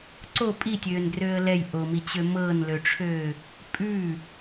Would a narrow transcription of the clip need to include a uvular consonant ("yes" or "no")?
no